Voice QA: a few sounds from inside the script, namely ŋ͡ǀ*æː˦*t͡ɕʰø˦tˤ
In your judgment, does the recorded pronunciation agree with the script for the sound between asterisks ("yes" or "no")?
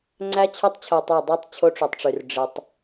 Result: no